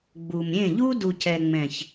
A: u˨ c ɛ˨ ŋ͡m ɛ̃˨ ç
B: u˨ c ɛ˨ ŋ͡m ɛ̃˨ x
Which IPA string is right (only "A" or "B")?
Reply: A